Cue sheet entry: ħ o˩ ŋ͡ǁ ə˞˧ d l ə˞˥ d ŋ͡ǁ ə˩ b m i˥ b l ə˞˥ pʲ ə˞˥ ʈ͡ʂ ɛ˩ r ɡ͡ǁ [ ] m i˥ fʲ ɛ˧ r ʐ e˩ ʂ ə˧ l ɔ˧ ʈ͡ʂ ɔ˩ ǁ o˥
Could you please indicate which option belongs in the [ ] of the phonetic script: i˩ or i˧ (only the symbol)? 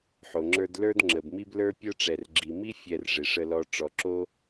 i˩